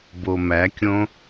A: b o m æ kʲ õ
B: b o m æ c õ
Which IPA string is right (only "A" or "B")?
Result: A